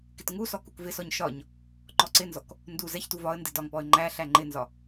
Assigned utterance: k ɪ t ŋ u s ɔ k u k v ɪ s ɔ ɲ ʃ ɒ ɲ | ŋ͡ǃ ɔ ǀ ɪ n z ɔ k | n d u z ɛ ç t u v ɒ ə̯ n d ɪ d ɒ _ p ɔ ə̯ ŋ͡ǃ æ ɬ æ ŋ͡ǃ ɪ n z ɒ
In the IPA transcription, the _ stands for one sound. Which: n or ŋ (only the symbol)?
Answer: ŋ